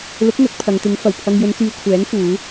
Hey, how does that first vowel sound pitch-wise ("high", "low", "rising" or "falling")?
rising